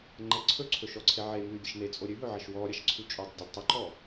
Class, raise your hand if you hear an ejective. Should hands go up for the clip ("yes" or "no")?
yes